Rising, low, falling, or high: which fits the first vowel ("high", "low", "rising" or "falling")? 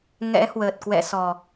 rising